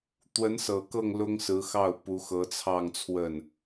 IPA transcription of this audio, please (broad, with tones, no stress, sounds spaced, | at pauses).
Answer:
t̪ w ə˧˥ n s ɤ˨˩ k ɤ˥˩ ŋ l ʊ˥ ŋ s ɹ̩˧˥ x ɑ˥˩ ʊ̯ p u˧˥ x ɤ˧˥ t͡sʰ ɑ˥˧ ŋ t͡sʰ w ə˥˩ n